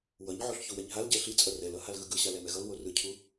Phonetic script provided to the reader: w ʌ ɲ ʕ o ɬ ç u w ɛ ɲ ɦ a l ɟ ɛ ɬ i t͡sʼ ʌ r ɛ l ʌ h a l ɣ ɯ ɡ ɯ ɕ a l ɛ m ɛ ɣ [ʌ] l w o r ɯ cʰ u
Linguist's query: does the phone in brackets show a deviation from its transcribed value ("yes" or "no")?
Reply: no